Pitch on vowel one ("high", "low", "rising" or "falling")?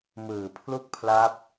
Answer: low